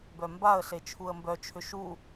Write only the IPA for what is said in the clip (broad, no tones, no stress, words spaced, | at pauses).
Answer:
bœmbaə̯ɬe t͡ʃʰuə̯mbœt͡ʃʰʏ ʃu